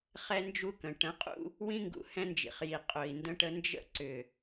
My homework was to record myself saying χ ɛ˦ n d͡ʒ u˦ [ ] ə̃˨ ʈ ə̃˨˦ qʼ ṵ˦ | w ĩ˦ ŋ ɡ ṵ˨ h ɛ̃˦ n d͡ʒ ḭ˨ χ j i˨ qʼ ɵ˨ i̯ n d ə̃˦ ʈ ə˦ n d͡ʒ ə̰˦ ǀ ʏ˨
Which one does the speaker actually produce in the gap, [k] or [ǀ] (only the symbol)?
k